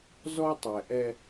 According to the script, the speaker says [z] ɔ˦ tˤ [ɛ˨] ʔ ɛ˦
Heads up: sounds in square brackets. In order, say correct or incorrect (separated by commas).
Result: correct, correct